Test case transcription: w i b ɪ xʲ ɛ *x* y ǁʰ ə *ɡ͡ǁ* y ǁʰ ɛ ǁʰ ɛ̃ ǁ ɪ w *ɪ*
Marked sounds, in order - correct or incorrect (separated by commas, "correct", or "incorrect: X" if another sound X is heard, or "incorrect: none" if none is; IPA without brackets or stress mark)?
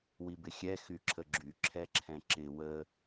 correct, correct, incorrect: ə